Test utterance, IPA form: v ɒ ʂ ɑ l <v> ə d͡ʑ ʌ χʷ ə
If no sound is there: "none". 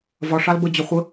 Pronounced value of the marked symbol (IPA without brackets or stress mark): b